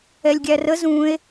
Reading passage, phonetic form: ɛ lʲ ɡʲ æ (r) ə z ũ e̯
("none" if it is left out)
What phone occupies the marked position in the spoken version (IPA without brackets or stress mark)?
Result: r